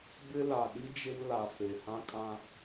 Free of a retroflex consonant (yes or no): yes